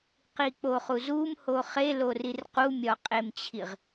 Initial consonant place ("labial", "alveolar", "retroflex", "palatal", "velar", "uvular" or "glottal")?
uvular